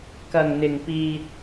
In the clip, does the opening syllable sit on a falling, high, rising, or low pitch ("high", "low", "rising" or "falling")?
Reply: low